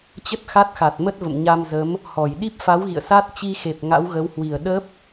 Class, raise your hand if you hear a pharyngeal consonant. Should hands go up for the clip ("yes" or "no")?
no